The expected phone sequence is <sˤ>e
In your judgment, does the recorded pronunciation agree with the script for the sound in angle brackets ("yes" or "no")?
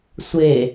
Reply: no